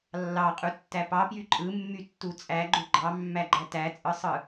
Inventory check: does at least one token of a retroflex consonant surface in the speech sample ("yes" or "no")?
no